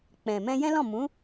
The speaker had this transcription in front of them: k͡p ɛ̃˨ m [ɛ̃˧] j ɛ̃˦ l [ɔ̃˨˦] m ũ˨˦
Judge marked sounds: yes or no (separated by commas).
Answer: yes, no